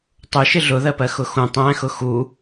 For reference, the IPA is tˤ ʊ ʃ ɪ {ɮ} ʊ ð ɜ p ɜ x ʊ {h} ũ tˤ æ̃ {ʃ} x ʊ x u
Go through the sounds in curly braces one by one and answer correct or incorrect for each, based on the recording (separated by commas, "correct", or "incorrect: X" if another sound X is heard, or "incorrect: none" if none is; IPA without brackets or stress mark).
correct, incorrect: x, incorrect: none